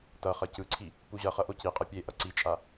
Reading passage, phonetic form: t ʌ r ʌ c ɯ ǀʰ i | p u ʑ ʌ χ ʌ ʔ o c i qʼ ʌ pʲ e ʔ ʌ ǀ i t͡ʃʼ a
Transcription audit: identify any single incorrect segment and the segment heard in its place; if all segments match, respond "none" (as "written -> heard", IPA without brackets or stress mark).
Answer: r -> χ